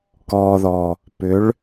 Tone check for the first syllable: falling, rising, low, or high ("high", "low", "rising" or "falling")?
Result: low